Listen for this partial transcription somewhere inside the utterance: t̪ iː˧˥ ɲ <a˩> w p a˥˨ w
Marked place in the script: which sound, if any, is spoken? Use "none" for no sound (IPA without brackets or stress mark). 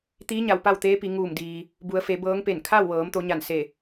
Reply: a˩